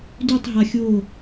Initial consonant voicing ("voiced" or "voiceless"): voiced